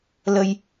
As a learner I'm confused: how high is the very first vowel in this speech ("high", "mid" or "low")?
mid